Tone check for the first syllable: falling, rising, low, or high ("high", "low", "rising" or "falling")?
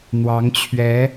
rising